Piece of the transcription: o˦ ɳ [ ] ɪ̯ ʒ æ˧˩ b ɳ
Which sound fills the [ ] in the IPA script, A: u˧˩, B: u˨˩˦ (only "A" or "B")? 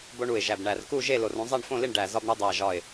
A